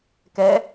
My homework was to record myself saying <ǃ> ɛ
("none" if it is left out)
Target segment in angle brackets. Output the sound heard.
k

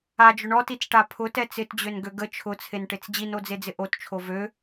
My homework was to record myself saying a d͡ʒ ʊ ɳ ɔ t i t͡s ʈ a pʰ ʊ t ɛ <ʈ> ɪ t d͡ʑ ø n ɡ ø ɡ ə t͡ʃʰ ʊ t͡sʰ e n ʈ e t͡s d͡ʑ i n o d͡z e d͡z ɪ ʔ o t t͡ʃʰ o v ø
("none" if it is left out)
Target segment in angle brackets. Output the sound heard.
t͡s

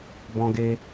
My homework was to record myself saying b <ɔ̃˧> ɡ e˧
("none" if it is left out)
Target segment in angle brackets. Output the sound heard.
ɔ̃˧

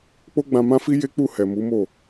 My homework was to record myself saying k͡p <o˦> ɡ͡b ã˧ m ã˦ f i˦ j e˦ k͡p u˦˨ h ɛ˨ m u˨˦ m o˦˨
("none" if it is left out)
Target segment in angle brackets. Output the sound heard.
o˦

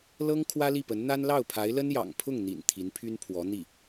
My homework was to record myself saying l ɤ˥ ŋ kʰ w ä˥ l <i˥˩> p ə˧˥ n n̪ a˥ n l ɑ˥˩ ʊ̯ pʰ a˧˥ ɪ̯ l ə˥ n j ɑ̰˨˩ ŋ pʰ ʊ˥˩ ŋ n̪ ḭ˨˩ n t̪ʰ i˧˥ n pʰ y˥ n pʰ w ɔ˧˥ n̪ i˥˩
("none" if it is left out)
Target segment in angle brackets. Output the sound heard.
i˥˩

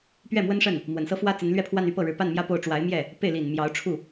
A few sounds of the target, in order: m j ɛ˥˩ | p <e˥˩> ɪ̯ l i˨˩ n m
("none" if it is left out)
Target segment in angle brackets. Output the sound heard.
e˥˩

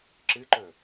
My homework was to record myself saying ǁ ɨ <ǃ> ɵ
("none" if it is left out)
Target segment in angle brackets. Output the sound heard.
ǃ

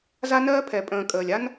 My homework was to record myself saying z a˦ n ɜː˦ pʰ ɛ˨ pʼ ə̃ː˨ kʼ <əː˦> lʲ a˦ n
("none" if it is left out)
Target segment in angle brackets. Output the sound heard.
əː˨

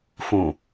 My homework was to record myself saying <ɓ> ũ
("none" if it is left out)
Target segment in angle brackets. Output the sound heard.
f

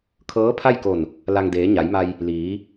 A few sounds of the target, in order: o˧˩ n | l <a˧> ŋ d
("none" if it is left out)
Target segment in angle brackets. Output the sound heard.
a˧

